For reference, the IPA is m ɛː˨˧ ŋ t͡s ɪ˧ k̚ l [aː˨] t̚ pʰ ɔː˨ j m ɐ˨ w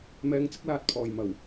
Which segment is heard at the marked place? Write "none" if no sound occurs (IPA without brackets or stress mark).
aː˨